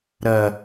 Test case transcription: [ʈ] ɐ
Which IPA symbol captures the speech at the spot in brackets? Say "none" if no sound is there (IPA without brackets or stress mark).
ɾ